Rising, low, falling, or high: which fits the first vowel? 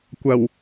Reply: low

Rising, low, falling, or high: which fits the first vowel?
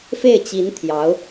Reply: falling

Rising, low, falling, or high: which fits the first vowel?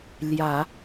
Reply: low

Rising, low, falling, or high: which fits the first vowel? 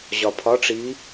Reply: low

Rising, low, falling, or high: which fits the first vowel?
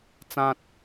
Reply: low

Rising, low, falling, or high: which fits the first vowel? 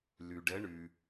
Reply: low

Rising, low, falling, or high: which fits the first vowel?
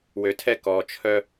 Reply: low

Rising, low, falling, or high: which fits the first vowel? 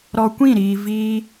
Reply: low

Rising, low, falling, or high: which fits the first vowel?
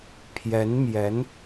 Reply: rising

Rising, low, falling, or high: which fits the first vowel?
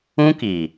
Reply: high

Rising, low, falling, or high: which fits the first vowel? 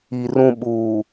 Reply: low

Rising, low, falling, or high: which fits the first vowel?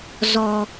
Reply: high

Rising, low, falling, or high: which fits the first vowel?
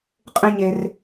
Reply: high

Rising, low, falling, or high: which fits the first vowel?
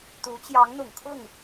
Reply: rising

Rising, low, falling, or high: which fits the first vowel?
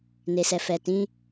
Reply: low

